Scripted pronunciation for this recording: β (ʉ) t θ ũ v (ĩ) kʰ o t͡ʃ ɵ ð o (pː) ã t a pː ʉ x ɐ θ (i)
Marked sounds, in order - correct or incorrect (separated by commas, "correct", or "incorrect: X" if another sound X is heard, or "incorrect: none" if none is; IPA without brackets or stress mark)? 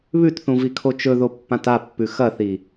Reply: correct, incorrect: i, correct, correct